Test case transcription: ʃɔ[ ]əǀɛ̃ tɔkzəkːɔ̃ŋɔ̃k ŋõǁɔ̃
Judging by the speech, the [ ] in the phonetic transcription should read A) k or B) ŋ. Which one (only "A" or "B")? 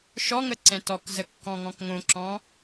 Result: B